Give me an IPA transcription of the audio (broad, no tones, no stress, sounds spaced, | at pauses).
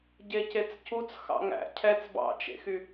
ɟ e c e t͡s c u t͡s x ɑ̰ ŋ æ̰ cʰ ɛ t͡s b ɑ̰ t͡ʃ ḛ x y